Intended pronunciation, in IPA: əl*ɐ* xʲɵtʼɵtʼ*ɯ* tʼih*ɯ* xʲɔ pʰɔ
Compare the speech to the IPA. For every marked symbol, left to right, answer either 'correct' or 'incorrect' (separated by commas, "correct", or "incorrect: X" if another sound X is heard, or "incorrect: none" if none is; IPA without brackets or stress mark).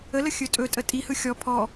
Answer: incorrect: ə, incorrect: ə, correct